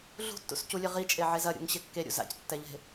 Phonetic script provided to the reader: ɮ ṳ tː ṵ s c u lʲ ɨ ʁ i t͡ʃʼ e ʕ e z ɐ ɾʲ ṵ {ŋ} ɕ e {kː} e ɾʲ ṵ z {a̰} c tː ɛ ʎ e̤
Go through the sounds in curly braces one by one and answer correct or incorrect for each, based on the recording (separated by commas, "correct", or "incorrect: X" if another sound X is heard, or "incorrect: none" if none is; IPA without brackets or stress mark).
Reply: correct, correct, correct